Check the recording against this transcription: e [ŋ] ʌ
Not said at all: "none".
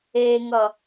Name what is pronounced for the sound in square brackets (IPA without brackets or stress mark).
ŋ